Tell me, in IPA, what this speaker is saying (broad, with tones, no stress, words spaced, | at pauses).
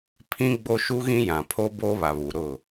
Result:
pʰĩ˦ɡ͡bo˦ʃu˦ɣĩ˦ jã˨pʰo˦ boː˦βa˨βu˨ɾʊ˦˨